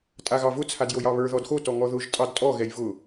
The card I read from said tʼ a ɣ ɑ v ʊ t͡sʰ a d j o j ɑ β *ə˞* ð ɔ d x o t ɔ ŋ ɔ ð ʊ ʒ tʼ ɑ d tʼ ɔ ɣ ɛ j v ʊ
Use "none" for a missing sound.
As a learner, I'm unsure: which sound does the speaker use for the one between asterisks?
ə˞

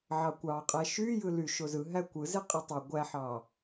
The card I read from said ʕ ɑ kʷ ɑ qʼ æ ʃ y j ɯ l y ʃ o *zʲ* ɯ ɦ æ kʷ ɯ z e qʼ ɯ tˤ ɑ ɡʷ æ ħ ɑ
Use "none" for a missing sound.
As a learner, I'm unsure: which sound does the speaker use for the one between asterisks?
z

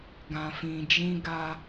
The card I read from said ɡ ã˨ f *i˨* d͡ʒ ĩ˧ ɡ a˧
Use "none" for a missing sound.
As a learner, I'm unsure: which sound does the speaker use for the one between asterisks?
ĩ˨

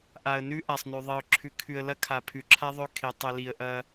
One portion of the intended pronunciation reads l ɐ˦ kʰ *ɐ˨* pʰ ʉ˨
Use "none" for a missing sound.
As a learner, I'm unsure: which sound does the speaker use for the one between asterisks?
a˨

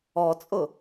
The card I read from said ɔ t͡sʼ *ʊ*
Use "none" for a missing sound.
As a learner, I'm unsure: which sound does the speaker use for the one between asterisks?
ʊ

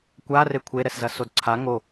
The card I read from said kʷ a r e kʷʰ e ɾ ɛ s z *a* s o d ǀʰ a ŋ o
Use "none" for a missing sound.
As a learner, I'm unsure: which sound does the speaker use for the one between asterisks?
ɐ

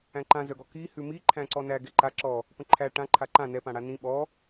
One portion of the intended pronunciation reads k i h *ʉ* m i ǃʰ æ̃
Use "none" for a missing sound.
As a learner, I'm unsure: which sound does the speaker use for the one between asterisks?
ʉ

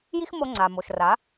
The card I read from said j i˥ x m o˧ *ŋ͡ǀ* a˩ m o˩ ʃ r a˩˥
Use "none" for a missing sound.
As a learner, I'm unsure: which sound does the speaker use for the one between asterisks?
ŋ͡ǀ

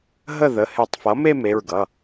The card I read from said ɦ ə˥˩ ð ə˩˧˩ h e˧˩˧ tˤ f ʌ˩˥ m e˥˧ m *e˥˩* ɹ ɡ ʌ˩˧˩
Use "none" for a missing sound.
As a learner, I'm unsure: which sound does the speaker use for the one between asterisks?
e˩˧˩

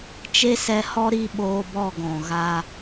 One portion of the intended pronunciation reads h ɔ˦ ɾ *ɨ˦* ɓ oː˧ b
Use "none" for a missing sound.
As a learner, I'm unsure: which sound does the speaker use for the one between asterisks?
i˦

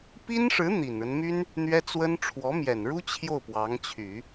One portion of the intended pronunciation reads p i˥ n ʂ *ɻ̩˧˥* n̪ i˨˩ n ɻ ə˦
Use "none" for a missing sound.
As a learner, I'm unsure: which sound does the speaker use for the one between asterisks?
ɻ̩˧˥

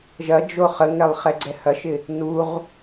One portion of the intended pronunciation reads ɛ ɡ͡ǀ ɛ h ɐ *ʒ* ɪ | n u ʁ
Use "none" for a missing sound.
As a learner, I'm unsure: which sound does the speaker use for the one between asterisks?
ʃ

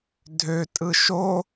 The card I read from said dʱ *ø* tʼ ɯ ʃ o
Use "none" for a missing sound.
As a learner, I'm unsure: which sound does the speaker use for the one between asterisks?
ø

